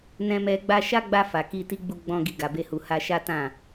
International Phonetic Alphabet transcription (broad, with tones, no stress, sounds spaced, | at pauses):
n ɛ̃˧ m ɛ˧ ɡ͡b a˧ ʃ a˦ ɡ͡b a˧ f a˨ k i˧ t i˦ ɡ͡b u˧ ɡ͡b ɔ̃˧ ɡ i˧ ɡ a˨ b e˧ h u˨ h a˧ ʃ a˦ t ã˦˨